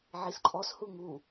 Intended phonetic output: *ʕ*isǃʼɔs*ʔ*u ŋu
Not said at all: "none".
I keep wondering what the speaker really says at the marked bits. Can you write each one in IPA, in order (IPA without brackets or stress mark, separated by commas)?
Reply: ʕ, h